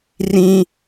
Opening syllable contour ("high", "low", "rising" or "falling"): high